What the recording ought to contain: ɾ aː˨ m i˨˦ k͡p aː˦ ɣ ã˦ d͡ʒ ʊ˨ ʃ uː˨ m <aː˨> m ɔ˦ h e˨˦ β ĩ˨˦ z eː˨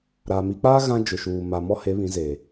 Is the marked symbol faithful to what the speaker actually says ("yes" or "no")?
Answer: no